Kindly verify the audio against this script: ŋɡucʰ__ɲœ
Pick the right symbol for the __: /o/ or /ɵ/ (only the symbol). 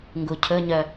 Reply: ɵ